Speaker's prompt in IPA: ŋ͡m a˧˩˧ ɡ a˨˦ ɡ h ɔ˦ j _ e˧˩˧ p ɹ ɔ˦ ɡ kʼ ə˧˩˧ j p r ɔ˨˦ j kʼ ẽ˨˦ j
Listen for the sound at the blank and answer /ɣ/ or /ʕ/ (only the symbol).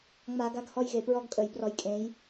ɣ